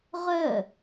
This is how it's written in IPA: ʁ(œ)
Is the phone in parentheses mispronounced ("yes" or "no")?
no